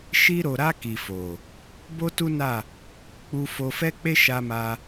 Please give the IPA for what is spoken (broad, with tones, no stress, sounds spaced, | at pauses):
ʃ i˧ ɾ o˨ ɾ a˧ k i˨ f o˨ | b o˦ t u˦ n a˦˨ | k͡p u˧ f o˧ f ɛ˦ k͡p e˦ ʃ a˧ m a˧